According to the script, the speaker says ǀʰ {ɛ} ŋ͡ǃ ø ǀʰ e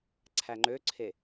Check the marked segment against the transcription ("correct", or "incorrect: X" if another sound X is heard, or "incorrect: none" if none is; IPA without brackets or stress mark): incorrect: æ